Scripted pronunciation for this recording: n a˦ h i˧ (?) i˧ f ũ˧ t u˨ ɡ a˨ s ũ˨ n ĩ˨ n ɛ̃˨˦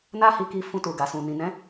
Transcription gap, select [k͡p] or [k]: k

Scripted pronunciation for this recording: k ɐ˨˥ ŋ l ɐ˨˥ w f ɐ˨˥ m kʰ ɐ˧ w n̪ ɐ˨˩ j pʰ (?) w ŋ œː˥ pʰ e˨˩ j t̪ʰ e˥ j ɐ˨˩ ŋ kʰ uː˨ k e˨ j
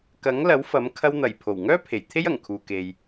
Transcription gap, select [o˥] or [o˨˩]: o˨˩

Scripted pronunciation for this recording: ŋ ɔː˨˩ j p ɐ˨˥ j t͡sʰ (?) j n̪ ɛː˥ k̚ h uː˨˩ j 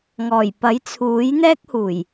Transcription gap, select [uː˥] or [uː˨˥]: uː˨˥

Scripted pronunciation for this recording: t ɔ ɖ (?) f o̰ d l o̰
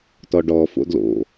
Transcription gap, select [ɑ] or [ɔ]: ɔ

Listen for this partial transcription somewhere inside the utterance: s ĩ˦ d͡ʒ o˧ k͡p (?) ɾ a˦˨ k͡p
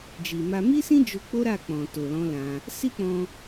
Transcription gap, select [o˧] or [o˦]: o˦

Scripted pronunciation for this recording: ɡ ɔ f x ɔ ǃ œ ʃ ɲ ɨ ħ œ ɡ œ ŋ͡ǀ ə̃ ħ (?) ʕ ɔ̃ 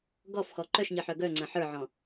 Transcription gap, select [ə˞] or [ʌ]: ə˞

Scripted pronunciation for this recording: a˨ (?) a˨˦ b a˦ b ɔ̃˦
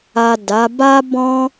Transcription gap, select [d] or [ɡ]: d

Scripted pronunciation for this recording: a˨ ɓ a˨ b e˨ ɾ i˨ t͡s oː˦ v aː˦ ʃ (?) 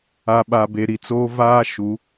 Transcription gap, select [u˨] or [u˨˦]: u˨˦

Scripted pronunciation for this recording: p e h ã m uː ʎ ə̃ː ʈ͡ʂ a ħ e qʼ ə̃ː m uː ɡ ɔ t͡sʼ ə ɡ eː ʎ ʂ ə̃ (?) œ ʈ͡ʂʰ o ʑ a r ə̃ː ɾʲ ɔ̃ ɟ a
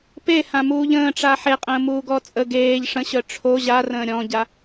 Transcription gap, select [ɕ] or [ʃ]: ɕ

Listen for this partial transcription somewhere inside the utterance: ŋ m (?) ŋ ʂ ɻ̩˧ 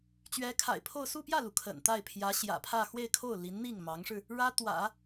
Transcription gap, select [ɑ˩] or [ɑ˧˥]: ɑ˧˥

